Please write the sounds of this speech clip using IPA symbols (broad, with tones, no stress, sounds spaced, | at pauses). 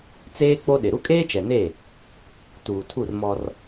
t͡s eː˦ k͡p o˦ ɗ ɪ˨ ɾ u˦ kʼ eː˦ t͡ʃ ɛ˨ n e˦˨ | t uː˨ tʰ u˦˨ r m ɔ˦ r